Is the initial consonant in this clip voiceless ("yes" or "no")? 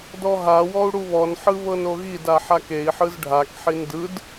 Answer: no